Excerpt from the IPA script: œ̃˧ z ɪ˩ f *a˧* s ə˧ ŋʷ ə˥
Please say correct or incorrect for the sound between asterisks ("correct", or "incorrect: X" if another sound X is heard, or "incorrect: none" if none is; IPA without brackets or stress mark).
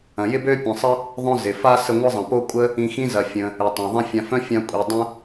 correct